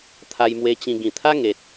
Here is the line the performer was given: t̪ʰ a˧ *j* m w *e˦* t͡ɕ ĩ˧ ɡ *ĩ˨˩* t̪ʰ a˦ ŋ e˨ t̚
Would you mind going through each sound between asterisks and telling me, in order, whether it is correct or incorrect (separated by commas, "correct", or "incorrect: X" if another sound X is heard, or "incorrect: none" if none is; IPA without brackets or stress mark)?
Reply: correct, incorrect: e˧, correct